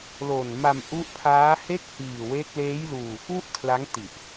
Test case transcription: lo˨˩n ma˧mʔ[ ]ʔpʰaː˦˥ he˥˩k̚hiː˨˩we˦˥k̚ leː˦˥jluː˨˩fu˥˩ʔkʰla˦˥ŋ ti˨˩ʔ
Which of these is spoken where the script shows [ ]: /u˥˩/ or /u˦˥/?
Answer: u˦˥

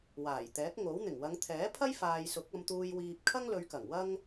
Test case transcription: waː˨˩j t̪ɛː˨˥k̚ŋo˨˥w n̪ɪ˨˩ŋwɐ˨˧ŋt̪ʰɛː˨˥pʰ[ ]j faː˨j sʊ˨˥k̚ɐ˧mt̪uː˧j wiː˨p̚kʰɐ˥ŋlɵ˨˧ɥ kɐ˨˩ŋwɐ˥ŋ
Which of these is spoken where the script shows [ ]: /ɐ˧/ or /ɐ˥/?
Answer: ɐ˥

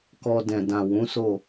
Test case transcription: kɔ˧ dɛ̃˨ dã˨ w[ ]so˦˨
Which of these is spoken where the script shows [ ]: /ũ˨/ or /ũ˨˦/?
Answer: ũ˨˦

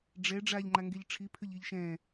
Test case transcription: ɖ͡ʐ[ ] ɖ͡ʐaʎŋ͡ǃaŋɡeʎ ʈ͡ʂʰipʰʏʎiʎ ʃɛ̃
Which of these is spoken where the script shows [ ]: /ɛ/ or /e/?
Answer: ɛ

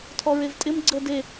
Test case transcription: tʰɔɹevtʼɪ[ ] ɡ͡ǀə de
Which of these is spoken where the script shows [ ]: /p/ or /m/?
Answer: m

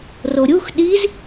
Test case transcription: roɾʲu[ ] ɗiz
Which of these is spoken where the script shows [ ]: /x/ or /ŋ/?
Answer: x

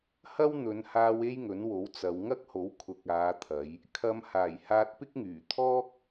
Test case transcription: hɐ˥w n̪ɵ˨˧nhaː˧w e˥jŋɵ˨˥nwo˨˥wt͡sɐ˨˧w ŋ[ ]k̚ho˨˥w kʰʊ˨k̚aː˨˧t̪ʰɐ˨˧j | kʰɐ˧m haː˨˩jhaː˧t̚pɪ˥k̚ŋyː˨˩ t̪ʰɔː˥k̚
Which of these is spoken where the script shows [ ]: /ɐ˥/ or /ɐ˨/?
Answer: ɐ˥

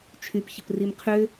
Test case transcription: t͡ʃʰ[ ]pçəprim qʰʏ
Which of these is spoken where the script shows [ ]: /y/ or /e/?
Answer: y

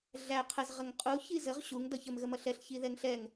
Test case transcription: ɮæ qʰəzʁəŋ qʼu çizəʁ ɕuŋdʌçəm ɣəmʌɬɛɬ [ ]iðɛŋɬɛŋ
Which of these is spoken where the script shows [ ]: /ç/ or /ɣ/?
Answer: ç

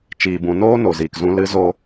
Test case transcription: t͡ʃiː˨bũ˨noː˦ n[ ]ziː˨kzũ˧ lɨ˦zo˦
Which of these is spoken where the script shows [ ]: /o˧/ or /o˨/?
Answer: o˨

